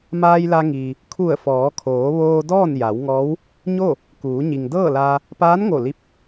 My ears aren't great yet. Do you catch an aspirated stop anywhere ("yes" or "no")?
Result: yes